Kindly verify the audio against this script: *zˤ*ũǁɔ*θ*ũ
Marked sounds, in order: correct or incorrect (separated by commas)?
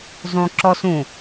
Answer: correct, incorrect